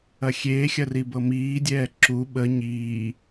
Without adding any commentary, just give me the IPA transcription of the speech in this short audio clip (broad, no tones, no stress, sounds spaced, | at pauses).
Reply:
ɐ xʲ eː xʲ ɐ r i b ɤ m iː dʲ ɛː ǁ u ɓ ə ɲ iː